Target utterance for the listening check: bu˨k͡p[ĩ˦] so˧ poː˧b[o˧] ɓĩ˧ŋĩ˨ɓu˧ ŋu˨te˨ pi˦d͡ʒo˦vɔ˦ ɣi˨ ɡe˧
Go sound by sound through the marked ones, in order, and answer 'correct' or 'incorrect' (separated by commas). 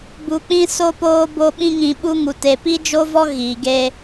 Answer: incorrect, correct